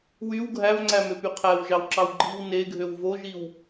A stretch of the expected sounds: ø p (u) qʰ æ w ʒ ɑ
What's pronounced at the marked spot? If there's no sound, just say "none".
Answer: y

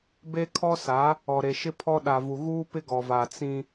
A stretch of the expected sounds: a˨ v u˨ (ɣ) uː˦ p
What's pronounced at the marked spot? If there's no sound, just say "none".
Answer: ɣ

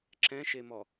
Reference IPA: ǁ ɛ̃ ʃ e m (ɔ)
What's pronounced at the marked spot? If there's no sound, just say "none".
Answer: ɔ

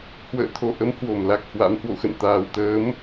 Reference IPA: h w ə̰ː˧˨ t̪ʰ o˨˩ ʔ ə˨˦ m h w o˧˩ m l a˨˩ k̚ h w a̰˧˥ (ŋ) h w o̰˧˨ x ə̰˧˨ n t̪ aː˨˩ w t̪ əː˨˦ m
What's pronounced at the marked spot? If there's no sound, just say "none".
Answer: m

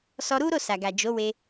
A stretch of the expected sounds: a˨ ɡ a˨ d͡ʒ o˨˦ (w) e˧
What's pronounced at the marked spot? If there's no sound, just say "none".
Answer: w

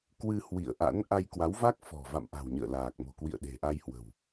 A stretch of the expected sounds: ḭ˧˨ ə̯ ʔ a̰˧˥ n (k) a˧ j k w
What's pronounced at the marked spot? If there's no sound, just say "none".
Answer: ʔ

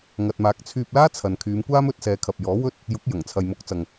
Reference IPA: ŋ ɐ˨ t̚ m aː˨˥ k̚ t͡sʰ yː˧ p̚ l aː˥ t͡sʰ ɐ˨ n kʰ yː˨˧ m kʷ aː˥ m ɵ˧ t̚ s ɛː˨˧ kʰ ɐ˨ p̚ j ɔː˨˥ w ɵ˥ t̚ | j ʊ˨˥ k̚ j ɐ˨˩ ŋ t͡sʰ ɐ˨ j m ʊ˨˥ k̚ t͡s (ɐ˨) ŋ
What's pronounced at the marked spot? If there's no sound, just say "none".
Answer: ɐ˨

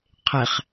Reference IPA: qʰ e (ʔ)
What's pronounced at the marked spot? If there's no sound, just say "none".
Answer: χ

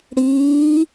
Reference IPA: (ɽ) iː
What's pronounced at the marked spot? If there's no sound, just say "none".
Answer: ɽ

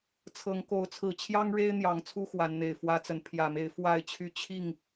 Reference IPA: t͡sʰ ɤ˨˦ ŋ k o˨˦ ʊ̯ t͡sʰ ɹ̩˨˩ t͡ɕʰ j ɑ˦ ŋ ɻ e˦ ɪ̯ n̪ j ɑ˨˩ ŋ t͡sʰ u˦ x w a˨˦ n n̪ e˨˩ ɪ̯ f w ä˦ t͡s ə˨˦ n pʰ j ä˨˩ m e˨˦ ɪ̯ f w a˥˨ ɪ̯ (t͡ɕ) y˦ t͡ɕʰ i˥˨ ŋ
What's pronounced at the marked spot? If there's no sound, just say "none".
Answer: t͡ɕʰ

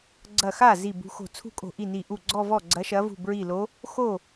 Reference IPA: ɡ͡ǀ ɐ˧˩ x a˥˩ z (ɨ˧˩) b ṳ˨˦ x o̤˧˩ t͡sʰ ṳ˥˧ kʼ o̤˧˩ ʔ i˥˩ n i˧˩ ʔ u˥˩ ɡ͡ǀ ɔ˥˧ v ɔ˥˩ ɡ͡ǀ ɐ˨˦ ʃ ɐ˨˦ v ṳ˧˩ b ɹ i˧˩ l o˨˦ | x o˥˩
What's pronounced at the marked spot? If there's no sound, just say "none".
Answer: i˧˩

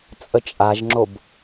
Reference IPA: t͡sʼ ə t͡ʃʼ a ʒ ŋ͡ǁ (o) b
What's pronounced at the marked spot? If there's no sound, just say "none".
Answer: o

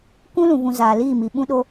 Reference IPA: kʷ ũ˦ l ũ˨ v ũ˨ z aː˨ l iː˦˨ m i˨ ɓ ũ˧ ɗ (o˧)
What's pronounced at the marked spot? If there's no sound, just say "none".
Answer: o˧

